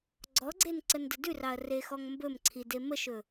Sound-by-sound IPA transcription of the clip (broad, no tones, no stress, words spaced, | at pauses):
ɡ͡ǀɔɡ͡ǀen ǀəndədʉrɑɐ̯ rexɔŋmbɵmǀʰi deməʃɵ